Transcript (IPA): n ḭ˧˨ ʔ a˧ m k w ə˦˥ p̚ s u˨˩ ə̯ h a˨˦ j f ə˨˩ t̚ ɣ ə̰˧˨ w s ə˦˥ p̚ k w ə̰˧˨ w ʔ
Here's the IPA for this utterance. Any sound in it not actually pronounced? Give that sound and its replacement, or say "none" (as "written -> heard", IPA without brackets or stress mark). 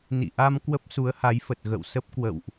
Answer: u˨˩ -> u˨˦